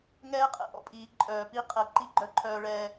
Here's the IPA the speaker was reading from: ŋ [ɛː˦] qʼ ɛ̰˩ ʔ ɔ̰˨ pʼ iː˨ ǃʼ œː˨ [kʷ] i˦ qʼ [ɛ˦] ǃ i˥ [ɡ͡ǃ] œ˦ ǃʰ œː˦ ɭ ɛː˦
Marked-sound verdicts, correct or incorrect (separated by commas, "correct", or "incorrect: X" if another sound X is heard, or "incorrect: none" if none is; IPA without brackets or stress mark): incorrect: ɛː˥, incorrect: p, correct, correct